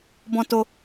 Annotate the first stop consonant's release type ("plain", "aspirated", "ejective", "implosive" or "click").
plain